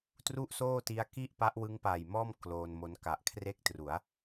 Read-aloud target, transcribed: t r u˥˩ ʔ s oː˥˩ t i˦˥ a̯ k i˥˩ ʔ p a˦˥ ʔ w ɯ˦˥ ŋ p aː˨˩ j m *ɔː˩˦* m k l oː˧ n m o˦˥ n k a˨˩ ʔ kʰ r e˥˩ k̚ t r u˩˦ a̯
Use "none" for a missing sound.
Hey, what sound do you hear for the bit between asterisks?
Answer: ɔː˥˩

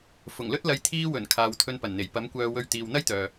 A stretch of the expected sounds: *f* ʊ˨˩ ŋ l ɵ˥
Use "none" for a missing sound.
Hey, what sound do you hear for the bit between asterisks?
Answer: f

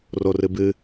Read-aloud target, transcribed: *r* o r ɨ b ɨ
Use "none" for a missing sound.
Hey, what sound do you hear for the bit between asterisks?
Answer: r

